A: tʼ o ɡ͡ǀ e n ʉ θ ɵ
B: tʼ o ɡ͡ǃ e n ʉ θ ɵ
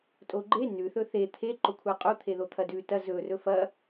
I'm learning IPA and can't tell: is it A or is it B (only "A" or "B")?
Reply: B